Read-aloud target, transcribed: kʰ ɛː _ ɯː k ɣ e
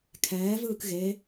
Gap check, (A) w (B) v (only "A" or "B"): B